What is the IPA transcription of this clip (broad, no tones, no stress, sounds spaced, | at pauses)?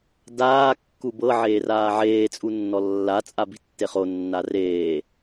d aː kː u b ɤ ʕ eː r aː ʕ eː t͡sʼ u nː ɔ lː a t͡sʼ a b i̤ tː e χ o nː a r eː